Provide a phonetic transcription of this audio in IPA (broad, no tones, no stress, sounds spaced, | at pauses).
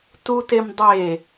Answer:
t u t e m dˤ e